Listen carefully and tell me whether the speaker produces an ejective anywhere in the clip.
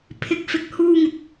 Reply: no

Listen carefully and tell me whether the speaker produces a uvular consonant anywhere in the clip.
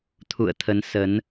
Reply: no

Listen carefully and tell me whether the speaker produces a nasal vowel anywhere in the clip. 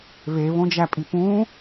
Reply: yes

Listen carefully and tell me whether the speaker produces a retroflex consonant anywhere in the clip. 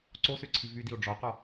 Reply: yes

